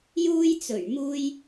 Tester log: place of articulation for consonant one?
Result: palatal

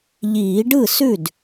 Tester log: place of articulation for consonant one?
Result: palatal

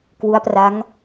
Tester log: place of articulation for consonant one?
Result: velar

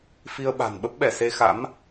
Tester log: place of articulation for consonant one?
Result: labial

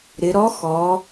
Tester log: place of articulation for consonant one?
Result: alveolar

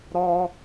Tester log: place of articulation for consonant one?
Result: alveolar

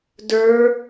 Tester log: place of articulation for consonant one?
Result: alveolar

